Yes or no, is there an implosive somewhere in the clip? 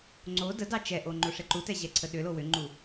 yes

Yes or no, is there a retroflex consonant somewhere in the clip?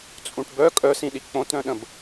yes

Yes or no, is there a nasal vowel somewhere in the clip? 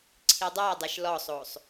no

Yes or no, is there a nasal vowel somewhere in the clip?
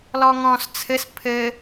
yes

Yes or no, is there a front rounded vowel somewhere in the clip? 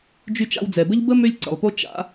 yes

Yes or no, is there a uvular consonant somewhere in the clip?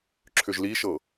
no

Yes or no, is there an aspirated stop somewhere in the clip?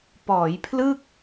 yes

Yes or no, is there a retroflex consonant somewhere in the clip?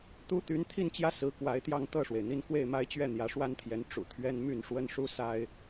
yes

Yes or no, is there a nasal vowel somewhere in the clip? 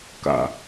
no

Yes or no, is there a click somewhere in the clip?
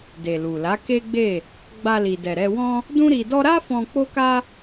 no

